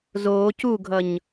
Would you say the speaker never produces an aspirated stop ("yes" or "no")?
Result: yes